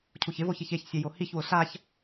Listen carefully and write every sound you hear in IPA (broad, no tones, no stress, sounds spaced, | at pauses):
cʰ u ç ɪ v o ç i ç e ç sʲ ɛ j o h i ç w ʊ ɬ a ç